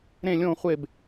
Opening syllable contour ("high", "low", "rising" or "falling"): falling